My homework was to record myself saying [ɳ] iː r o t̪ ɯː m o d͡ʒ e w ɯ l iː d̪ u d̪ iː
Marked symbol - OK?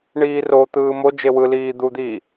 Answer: yes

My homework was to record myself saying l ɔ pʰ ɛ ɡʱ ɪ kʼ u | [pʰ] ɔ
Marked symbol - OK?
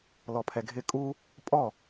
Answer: no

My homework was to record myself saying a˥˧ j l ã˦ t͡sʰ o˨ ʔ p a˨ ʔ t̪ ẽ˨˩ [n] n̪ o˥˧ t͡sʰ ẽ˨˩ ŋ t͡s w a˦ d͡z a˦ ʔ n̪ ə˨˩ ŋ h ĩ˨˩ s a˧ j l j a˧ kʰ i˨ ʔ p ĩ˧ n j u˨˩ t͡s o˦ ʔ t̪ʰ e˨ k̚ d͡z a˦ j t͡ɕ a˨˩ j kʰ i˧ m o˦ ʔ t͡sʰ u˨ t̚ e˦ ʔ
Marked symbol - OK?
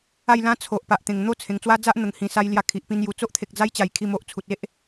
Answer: no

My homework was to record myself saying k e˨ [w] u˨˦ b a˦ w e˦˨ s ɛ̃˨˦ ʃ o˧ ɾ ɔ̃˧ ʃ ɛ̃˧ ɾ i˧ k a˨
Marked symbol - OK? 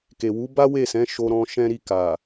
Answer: yes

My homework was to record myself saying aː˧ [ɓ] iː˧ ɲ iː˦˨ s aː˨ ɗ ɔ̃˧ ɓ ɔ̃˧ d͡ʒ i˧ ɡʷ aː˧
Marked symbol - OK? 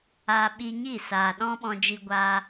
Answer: yes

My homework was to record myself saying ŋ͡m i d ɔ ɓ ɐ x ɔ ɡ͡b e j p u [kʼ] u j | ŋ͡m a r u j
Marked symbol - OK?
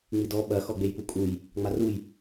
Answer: yes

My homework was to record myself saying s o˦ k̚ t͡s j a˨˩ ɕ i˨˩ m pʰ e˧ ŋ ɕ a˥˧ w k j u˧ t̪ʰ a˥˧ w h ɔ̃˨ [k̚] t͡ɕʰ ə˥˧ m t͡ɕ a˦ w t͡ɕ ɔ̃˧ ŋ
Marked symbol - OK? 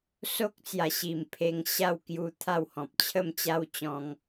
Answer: no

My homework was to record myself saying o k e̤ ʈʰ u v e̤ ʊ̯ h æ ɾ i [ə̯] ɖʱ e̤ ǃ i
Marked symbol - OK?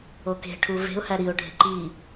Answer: no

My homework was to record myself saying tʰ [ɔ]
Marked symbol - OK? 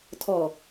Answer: yes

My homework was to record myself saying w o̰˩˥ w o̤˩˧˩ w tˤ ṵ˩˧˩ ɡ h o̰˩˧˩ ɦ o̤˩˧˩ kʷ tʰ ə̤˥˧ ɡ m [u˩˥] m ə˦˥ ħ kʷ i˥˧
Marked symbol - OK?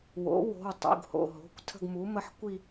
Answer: yes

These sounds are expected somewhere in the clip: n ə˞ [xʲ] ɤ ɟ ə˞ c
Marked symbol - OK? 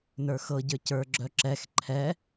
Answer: no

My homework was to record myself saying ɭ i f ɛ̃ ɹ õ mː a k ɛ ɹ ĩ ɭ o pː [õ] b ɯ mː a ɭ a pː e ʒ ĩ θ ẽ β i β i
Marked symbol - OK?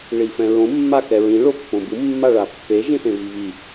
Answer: yes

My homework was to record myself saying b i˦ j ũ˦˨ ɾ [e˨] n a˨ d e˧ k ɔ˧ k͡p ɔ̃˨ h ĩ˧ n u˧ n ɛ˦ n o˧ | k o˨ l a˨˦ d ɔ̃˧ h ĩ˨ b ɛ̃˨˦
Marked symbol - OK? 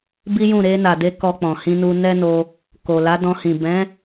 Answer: no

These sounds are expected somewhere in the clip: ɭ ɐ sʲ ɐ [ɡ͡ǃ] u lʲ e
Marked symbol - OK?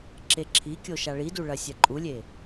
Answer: no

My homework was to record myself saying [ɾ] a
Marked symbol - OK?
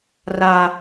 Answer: no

